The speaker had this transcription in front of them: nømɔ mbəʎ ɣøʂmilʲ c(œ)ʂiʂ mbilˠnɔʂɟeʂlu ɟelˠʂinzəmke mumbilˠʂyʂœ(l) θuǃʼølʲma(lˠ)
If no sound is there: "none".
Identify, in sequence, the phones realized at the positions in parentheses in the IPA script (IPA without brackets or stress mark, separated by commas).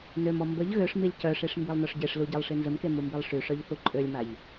œ, ʎ, ʎ